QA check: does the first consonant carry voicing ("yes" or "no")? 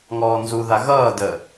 yes